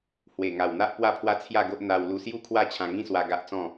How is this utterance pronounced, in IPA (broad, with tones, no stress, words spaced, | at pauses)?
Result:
hwe˨˩ŋa˨˩wn̪a˦ʔ pwa˥˧pʰwa˦t͡sʰja˥˧ɡo˦ʔ n̪a˧w lu˧sju˥˧kʰwa˥˧ t͡ɕʰã˧ŋĩ˦swa˧ ɡa˦ʔt͡sɔ̃˥˧